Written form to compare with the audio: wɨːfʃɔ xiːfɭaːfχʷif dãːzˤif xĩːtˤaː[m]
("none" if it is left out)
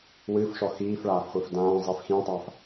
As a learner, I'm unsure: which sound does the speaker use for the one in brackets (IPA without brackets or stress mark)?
f